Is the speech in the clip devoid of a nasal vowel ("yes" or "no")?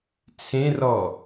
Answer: no